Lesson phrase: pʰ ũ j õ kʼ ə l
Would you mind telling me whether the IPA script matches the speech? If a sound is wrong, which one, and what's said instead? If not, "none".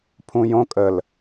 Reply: none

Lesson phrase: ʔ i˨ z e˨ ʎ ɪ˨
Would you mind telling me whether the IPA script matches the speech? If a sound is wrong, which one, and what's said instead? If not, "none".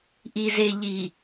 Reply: ɪ˨ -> i˨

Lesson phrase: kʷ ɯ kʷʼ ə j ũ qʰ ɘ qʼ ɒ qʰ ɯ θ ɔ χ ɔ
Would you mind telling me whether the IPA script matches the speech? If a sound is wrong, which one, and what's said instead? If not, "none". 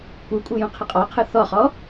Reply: ə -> ɯ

